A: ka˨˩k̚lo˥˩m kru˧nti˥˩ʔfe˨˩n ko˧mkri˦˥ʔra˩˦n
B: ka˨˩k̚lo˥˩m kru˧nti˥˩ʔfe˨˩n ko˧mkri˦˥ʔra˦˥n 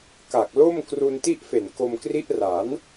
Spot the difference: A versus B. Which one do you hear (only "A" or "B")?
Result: A